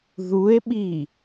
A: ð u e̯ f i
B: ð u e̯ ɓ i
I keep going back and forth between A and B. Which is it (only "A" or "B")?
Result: B